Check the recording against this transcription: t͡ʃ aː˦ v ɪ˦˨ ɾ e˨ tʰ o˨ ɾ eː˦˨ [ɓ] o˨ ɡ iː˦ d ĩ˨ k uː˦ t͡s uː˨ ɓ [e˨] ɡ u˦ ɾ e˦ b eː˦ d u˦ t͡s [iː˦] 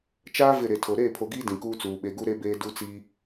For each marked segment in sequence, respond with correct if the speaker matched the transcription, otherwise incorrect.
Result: incorrect, correct, correct

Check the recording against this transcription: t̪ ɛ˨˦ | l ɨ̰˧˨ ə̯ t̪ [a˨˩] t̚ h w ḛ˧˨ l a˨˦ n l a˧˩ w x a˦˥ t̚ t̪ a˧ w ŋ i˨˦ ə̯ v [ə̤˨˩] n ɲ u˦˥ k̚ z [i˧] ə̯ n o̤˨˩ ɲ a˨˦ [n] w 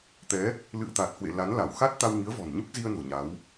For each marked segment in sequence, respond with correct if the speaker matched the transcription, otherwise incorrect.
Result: correct, incorrect, correct, incorrect

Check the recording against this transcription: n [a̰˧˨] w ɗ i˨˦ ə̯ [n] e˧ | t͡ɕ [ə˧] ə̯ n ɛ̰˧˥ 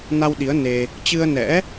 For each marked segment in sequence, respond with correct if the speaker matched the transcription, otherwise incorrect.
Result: incorrect, correct, incorrect

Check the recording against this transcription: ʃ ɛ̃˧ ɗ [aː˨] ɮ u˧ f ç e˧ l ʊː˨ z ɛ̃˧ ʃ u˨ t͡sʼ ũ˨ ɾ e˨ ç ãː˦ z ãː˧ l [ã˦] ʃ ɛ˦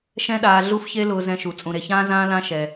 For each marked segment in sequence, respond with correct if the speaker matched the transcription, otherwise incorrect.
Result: correct, incorrect

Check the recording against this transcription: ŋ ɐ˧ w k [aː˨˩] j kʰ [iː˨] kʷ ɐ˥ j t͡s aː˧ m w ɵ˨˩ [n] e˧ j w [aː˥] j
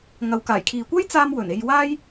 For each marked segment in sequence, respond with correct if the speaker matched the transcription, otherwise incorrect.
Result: correct, correct, correct, correct

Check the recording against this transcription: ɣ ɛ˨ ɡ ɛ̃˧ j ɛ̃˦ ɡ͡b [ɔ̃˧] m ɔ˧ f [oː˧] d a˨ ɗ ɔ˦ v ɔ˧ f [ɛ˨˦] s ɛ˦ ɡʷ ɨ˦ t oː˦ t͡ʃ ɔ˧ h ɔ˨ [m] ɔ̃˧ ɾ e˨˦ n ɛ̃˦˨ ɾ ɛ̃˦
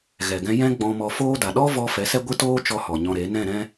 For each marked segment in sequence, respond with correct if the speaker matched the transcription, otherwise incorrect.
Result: correct, incorrect, correct, incorrect

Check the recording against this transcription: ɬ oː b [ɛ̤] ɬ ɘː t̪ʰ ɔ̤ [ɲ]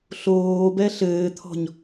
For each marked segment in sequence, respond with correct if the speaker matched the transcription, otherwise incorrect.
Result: incorrect, correct

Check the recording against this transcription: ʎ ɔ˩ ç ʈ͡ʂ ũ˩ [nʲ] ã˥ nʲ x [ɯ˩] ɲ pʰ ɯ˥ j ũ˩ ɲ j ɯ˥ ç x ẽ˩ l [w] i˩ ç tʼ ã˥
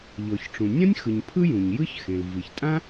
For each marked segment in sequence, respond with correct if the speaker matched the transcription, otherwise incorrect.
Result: correct, correct, incorrect

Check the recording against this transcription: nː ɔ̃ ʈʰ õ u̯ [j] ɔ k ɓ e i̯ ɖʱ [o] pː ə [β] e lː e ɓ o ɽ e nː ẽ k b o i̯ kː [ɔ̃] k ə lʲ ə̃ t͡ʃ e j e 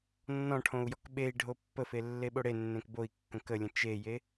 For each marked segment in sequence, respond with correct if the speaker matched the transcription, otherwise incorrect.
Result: correct, correct, incorrect, incorrect

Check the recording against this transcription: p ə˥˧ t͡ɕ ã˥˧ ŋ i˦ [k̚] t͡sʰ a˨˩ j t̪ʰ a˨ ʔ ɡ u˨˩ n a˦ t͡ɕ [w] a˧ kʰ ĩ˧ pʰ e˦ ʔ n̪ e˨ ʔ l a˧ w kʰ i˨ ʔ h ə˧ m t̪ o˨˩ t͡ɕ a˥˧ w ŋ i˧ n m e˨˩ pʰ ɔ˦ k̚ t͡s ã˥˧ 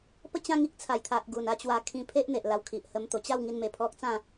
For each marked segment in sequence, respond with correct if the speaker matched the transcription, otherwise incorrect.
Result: correct, correct

